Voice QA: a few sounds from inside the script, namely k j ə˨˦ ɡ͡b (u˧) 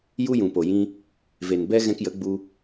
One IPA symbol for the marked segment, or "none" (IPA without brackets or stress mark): u˧